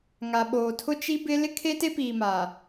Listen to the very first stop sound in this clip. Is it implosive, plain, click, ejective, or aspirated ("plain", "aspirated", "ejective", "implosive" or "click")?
implosive